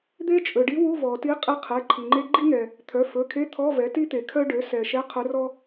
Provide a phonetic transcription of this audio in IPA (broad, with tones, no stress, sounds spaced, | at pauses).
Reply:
d̪ e˥ t͡ʃʼ ɵ˩ ɖ i˧˥ w u˧˥˧ v ɔ˩ t i˧˥ qʼ i˧˥ qʰ ɛ˩˧˩ ǃʰ i˩ ŋ͡ǃ e˥ ɡ͡ǃ i˥ ŋ ɛ˩ | t̪ʰ œ˩˧˩ f ɵ˩˧˩ kʰ e˧˥˧ t̪ʰ ɔ˧˥˧ v ɛ˩˥ t i˥ t̪ e˩ kʰ œ˥ ɖ ø˩˥ s ɛ˩ ʃ ɛ˧˥˧ qʰ ɵ˧˥ r ɔ˥